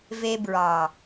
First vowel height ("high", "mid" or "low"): mid